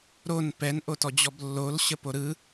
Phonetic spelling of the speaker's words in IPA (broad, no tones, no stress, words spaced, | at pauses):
ɾon pɛn ʔotɔd͡ʑɔblːol ɕəpoɾɯ